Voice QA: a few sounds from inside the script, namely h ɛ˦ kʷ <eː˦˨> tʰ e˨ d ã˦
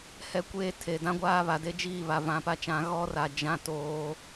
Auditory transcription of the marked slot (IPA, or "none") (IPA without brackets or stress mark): eː˦˨